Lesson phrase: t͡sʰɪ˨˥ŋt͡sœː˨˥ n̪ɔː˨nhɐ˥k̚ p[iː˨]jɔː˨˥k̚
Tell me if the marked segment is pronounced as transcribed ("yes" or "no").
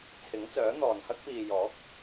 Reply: yes